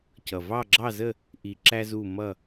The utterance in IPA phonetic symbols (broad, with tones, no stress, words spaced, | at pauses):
cʌ˨˩ vɑ˦˨ɡ͡ǁɑ˦˨zə˦˨ | ʔi˨˩ ǁæ˦zu˦˨ mʌ˦˨